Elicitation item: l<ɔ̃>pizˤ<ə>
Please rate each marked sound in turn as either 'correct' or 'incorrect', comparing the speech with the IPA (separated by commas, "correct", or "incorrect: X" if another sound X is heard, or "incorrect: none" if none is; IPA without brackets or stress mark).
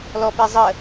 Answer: incorrect: ɔ, correct